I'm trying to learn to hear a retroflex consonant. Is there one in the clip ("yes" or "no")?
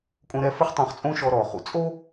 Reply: no